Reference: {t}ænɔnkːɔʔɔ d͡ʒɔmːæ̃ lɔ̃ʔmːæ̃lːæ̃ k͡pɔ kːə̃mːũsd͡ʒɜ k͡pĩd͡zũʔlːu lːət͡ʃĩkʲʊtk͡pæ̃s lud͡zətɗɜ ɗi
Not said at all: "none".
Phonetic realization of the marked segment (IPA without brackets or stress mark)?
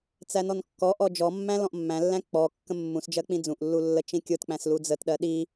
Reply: t͡s